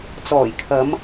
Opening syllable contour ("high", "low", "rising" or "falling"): low